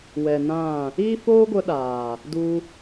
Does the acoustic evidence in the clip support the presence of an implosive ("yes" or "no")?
yes